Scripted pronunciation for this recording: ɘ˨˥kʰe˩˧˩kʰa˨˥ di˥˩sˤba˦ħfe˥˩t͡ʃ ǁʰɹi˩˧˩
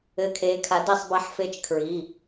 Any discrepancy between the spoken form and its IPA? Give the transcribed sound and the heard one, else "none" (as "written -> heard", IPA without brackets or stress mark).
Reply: ǁʰ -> kʰ